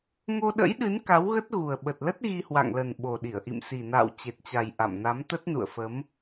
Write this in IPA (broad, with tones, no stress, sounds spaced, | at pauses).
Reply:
ŋ o˧ ɗ ə̰˧˥ j ɗ ɨ˨˦ n k a˨˦ w ɣ ə˦˥ t̚ ɣ u˨˩ ə̯ ɓ ə˨˩ t̚ l ə˦˥ t̚ ɣ i˧ h w a̰˧˨ ŋ l ə˨˩ n ɓ o˨˩ ɗ i˧˩ ə̯ ʔ ḭ˧˨ m s i˨˩ n a̰ː˧˨ w t͡ɕ e˨˩ t̚ t͡ɕ a˨˩ j ʔ a̰˧˨ m n a˨˦ m t̪ ə˦˥ t̚ n ṵ˧˨ ə̯ f ə˨˦ m